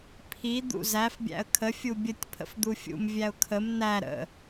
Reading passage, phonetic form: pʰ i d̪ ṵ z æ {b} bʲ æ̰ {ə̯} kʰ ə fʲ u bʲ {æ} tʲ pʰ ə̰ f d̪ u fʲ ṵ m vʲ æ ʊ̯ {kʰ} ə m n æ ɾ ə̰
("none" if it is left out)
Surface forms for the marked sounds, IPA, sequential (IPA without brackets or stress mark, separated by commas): f, ə̯, ə, kʰ